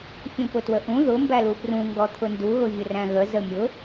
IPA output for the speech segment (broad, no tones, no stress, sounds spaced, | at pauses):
fʲ ũ p ʊ t w ə ʔ ũ ð ʊ m b æ l u p r ũ ŋ ɡ ɔ t̪ʰ ʊ n d u ɣ ʊ vʲ ʊ r æ̃ ɣ ə z ə mʲ ʊ